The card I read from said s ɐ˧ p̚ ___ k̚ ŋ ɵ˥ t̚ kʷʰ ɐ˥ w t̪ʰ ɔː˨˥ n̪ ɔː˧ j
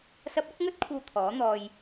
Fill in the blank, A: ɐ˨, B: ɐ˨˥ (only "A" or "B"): B